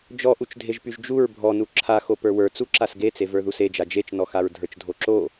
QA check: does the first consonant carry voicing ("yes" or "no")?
yes